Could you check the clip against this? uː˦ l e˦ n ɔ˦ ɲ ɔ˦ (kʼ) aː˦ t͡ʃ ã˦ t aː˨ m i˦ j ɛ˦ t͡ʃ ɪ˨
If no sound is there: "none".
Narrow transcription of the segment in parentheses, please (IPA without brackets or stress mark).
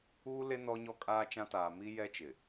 kʼ